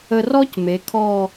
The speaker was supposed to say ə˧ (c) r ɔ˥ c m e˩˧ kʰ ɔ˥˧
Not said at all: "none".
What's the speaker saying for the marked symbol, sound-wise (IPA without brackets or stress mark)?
none